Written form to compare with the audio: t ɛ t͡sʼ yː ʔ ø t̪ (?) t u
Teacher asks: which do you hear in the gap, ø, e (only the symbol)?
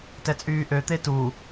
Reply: e